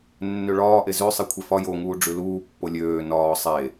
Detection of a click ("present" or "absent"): absent